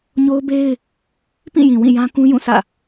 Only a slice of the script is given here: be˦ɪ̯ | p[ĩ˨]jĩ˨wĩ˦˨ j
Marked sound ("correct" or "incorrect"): incorrect